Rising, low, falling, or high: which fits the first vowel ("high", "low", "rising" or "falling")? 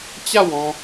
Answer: falling